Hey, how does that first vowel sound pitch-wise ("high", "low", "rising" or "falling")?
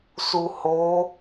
low